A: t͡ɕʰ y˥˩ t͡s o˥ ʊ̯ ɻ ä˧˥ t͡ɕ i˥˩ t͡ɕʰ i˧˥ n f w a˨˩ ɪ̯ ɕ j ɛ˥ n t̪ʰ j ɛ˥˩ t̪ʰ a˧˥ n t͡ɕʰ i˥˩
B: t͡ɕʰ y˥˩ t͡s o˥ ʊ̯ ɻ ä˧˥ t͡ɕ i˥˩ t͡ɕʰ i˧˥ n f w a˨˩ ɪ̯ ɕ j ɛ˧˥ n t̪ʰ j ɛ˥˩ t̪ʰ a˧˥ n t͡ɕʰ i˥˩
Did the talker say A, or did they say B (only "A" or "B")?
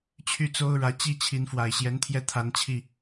B